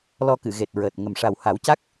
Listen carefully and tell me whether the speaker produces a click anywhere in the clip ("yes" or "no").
no